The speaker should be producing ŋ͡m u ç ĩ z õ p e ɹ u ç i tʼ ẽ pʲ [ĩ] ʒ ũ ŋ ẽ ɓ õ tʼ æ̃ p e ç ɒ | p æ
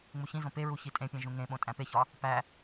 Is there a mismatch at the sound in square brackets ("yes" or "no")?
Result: yes